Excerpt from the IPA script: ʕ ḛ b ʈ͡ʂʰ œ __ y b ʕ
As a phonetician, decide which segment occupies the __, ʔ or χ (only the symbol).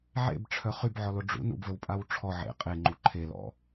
χ